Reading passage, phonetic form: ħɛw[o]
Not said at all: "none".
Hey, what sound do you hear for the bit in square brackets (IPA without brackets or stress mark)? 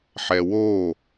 o